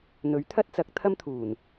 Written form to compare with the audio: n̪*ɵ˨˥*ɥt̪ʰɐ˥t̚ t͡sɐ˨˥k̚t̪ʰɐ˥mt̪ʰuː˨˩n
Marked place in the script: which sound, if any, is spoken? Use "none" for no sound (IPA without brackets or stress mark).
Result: ɵ˨˥